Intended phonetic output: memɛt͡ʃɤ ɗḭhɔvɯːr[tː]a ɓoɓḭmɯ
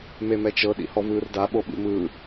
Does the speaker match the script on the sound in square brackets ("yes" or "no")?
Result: no